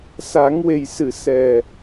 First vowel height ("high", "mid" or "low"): low